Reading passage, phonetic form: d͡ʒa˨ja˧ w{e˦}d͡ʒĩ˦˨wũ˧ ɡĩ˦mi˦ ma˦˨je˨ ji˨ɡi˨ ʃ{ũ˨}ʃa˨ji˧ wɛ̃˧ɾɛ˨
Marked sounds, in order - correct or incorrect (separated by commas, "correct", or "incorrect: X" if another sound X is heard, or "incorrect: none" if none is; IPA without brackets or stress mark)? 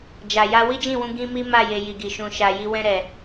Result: incorrect: i˦, correct